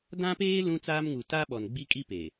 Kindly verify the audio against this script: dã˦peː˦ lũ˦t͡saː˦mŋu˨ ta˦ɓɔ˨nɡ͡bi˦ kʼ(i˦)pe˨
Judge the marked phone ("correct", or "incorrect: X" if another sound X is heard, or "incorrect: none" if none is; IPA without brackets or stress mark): correct